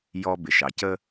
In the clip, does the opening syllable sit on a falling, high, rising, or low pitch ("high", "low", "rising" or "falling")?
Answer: low